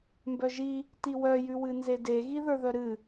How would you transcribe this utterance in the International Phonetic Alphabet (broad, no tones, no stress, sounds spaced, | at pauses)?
m b œ ʒ i | t i w œ j ʉ w ɨ n z e d e ɣ i ð ə˞ ð œ ɾ ɨ